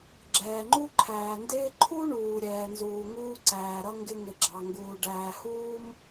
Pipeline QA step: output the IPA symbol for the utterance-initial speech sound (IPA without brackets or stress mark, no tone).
ɡ͡ǁ